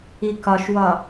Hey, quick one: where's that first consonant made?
velum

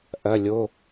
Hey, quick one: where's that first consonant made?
throat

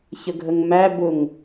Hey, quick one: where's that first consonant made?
palate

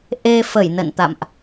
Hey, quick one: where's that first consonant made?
throat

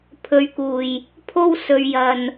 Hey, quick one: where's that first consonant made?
lips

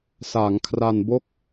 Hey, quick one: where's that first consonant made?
tongue tip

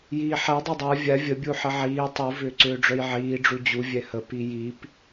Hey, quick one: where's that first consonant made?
palate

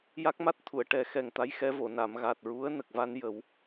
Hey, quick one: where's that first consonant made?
palate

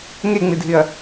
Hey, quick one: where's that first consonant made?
velum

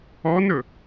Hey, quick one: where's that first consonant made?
tongue tip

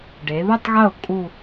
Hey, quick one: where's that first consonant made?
retroflex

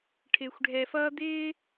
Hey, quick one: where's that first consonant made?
retroflex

